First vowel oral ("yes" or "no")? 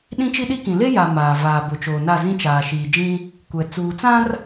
no